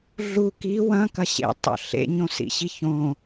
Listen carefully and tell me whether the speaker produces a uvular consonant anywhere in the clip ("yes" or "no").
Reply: no